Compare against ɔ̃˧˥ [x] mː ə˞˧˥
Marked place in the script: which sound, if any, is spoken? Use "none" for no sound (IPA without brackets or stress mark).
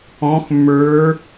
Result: x